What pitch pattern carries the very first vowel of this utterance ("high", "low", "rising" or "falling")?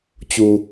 low